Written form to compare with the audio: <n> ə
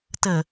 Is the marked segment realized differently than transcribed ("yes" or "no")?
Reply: yes